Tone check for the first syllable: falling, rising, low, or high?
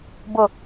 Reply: low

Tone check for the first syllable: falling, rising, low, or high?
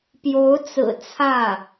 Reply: rising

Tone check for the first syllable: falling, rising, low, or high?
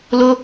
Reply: high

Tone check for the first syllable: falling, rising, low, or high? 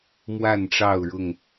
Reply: falling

